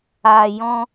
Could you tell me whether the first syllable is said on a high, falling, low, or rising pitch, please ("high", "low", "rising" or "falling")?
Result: low